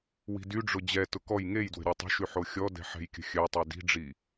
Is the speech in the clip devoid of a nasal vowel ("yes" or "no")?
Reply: yes